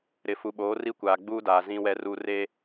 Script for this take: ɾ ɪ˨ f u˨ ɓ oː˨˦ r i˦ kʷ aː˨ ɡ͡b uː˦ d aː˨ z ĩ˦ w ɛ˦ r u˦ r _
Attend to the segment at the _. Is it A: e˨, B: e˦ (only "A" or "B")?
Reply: B